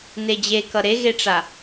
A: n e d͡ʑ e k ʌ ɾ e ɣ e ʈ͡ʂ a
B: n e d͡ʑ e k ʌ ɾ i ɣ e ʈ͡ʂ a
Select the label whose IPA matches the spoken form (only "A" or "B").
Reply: A